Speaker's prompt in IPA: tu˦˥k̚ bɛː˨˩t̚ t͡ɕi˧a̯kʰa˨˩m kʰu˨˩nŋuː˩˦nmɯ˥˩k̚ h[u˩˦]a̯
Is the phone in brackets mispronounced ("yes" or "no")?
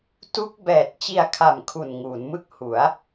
no